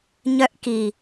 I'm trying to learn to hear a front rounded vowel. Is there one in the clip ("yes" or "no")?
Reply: yes